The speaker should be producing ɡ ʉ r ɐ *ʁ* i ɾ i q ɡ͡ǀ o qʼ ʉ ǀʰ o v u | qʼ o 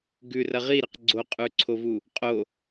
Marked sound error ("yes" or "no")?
no